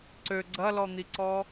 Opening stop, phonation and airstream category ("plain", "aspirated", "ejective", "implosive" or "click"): click